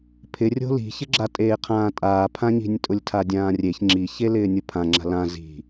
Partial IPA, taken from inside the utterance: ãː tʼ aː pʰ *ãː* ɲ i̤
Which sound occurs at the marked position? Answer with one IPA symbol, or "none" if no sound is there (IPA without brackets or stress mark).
ã